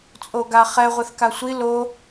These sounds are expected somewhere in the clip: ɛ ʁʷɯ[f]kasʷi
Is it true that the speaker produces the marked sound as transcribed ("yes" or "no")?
no